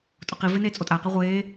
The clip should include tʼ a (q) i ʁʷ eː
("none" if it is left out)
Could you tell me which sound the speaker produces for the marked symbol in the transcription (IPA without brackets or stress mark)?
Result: q